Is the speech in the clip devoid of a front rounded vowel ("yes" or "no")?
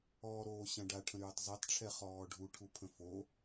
no